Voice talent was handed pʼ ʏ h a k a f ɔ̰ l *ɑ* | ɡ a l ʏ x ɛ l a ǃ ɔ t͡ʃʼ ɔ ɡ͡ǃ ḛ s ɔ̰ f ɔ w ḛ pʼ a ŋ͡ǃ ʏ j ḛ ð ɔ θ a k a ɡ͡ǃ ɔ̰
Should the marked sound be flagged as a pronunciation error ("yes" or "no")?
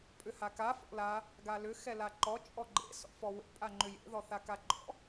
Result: yes